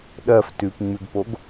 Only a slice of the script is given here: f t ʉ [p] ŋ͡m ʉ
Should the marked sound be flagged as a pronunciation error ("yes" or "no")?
no